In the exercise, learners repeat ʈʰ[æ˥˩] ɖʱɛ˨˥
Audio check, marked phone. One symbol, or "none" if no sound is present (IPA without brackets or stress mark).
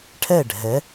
ɛ˥˩